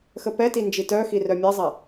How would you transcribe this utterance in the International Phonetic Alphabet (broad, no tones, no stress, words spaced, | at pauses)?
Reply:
xəpɛti nd͡ʒitœxi rœmʲɛzˤɛ